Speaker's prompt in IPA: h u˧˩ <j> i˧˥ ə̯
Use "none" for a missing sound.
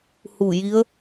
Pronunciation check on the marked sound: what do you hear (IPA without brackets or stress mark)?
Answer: j